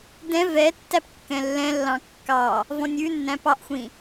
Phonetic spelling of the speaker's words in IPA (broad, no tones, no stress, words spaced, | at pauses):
dɛ̃ vɛtːæp kːɛ̃lːɛ̃lːɑ̃ kːɑ | vɔ̃nʲʉnːæ̃ pɑʔxʷĩ